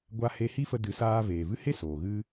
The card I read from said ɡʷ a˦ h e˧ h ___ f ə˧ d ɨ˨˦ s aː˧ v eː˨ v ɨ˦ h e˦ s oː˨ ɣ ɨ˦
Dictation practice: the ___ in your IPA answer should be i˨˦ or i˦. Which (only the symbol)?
i˦